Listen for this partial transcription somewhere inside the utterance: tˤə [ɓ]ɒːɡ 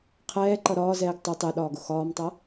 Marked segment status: incorrect: ɗ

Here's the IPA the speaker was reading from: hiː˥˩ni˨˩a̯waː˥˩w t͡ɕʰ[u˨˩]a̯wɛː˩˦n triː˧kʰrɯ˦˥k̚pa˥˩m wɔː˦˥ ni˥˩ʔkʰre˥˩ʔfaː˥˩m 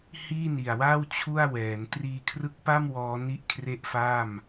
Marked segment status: incorrect: u˥˩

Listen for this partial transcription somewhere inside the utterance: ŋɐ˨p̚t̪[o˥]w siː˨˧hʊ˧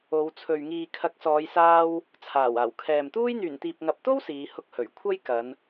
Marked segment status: correct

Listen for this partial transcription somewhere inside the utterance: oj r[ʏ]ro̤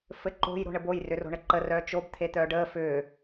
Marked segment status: correct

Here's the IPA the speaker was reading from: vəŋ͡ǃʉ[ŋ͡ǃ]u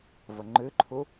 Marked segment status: incorrect: ǃʰ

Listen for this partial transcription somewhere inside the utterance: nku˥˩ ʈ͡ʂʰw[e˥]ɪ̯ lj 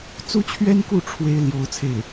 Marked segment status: correct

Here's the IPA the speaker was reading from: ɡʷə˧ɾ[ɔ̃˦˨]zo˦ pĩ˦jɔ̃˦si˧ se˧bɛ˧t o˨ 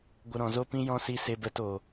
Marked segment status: incorrect: ɔ̃˨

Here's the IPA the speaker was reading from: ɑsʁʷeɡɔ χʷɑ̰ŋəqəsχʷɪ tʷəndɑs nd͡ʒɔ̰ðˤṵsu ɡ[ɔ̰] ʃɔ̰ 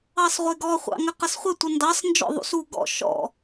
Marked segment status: correct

